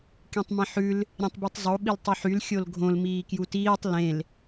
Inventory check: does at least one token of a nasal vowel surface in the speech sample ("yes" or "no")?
yes